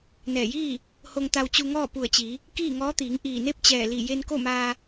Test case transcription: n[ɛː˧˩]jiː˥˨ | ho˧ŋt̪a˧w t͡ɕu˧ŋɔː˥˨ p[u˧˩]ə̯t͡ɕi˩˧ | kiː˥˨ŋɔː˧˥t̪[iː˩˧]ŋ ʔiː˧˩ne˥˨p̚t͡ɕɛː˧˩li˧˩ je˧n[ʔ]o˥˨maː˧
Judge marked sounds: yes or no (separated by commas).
yes, yes, yes, no